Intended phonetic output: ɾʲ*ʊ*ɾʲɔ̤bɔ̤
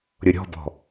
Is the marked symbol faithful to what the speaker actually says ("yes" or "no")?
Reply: yes